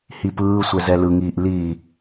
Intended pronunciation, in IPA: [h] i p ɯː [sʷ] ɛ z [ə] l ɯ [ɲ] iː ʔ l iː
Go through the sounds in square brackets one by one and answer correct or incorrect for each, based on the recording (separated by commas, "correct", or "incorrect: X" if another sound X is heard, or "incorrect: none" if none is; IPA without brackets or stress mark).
correct, correct, incorrect: ɛ, incorrect: ŋ